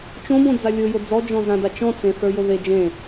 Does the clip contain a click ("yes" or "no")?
no